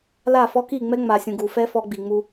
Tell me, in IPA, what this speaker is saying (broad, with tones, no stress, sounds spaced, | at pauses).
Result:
l a˦˨ f ɔ˦ k i˦˨ ŋ͡m ɛ˦ ŋ͡m a˨ sʲ ũ˨ ɡ u˨ f ɛ˦ f ɔ˦ ɡ͡b i˨ ŋ͡m u˦